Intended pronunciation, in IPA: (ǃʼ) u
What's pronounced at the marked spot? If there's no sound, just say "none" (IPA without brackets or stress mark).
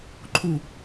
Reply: ǃʰ